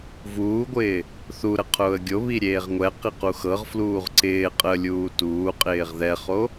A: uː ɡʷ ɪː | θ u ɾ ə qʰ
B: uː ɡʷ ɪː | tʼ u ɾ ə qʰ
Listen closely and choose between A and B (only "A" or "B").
A